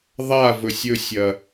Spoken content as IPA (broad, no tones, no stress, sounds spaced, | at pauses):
ðˤ a v ɵ sʲ ɵ sʲ ɐ